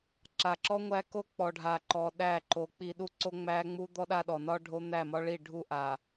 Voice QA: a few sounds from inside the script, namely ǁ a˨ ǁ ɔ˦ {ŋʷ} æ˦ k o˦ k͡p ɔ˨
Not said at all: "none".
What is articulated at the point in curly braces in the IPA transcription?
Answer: ŋʷ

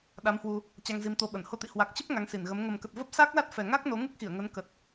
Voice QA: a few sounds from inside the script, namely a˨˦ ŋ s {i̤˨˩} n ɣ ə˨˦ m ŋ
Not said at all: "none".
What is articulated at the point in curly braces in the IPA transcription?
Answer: i˧˩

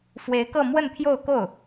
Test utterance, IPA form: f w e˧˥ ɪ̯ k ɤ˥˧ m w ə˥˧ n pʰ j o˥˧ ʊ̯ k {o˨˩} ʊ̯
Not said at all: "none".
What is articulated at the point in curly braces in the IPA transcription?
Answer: o˥˩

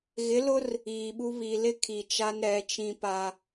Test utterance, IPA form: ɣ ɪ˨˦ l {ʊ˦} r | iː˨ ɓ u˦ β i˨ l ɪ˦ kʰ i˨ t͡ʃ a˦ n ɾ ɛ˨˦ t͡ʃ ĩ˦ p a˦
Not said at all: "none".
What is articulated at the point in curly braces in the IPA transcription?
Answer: ʊ˦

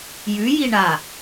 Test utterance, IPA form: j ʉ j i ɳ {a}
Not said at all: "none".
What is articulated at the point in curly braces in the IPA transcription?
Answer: a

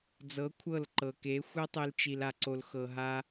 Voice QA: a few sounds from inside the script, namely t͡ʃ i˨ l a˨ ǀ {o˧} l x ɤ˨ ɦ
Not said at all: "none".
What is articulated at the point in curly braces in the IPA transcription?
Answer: o˨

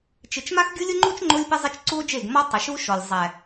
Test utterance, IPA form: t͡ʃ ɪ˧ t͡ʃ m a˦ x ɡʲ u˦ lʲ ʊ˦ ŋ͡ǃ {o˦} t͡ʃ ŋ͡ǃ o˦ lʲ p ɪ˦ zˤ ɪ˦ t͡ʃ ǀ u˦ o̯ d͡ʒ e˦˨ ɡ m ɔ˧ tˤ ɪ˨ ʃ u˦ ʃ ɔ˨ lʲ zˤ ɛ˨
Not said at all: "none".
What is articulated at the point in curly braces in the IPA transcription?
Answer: u˦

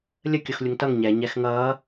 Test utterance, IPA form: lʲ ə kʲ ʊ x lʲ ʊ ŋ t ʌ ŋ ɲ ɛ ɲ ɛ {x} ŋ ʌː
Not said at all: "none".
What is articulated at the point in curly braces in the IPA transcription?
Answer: x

